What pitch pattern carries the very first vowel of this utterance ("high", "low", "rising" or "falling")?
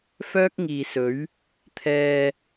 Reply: high